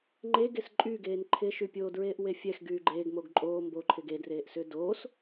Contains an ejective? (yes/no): yes